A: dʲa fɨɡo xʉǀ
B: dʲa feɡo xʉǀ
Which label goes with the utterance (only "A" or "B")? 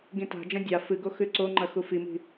A